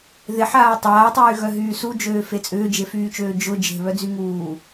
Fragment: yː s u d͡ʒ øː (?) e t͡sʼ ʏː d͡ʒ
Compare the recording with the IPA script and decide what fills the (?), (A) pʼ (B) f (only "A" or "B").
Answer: B